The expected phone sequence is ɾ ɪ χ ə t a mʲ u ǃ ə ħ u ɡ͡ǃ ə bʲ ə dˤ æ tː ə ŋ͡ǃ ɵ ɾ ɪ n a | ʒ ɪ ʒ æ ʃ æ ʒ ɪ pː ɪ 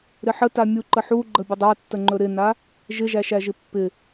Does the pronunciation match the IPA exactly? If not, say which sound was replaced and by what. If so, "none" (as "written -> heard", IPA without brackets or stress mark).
χ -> ħ